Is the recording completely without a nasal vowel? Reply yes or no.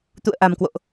yes